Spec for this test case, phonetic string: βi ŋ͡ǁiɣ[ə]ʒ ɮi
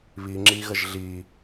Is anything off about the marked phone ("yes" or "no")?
no